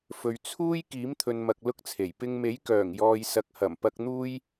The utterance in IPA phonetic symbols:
f ɵ˨ ɥ t͡sʰ uː˥ j k iː˨˥ m t̪ʰ ɵ˨ n m ɐ˨ k̚ l ʊ˥ k̚ t͡sʰ e˨˩ j p ɪ˧ ŋ m e˨˥ j k œː˨˩ ŋ j ɔː˨ j s ɐ˨ k̚ h ɐ˨˩ m p ɐ˧ k̚ n̪ uː˥ j

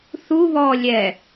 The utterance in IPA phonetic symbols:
θ u β ɔː lʲ ɛ

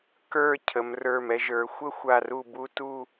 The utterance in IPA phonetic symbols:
k ə˞˥˧ cʰ ə˩˧ m r ə˞˧˩ m ɛ˧ ʒ ə˞˩˧ xʷ ə˥˧ xʷ a˧˩ r u˧˩ b u˧ t u˥˧

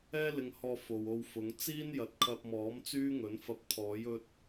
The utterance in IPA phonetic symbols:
ɛː˥ l ɪ˧ ŋ h ɔː˧ f o˨ w o˧ w f ʊ˨˧ ŋ t͡s iː˥ n j ɐ˨ t̚ kʰ ɐ˧ p̚ m ɔː˨˥ m t͡s yː˥ ŋ ɵ˨˥ n f ɐ˧ p̚ t̪ʰ ɔː˨˥ j ɵ˥ t̚

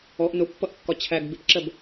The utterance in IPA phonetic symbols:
ɔ ʔ n ʊ pː ʌ ʔ kː ɒ t͡ɕʰ æ ɡ b ɪ p ǁ ɜ b

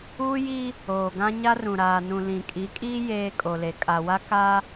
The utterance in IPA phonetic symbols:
uː˦ j iː˦ | oː˨ ɡ ã˦ ɲ a˦ r ũ˨ ɾ aː˨ n ũ˨ l ĩ˨ kʼ i˨˦ kʼ iː˦ j eː˦ kʼ o˨ l e˨ kʼ a˨ w a˦ k aː˦

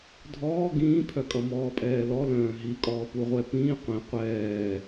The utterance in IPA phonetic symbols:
dʱ ɔː ɡ ĩː pʰ œ kʼ ʌ m ɔː pʼ ɛː l ɔ l œ̃ː ɦ i kʼ ɔː p u ʁʷ ɛ p ĩː qʷ ĩ qʷ ɛː

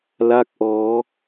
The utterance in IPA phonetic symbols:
l a˥˩ k̚ ʔ ɔː˦˥

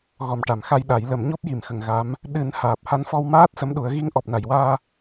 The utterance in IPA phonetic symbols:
ɣ ɔ˨˩ m ʈ a˨˩˨ m x a˧ j ɗ a˨˩˦ j l ə˨˩˦ m ɲ o˦˥ p̚ j i˨˩˨ m x ə˨˩˨ ŋ ɣ a˧˥ m | ɗ ɨ˨˩˦ n h aː˨˩ p̚ h a˧ n f ɔ˧ w m aː˦˥ t̚ s ə˧˥ m ɗ u˨˩˦ ə̯ ɣ i˧ ŋ ʔ ɔ˨˩ p̚ n a˨˩˨ j w aː˧

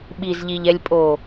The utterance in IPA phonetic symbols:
ɓ i z ʎ i ʎ ɛ lʲ pʼ o

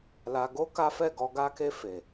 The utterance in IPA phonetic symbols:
l a˧ ɡ o˦ k a˦ f ɛ˦˨ ɡ ɔ˧ ɡ a˧ k e˧ f e˨

